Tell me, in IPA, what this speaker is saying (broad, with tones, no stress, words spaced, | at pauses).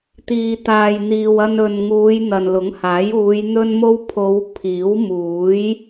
t̪iː˨t̪aː˨jn̪iː˨w ɐ˧nɵ˨n ŋuː˨˧j n̪ɐ˨nlʊ˨˥ŋhaː˨˥juː˨˧j n̪ɵ˥nmo˥w pʰo˨˧w pʰiː˨˥wmuː˨˥j